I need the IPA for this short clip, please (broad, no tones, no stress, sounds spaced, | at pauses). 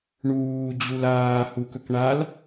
ɳ uː d͡ʑ u l aː h u k ɵ k ɳ a l